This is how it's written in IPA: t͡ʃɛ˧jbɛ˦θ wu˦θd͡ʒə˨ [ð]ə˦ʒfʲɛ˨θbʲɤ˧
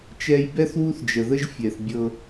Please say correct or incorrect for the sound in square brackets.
correct